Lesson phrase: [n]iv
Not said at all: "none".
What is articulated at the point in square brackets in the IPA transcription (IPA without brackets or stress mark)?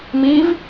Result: m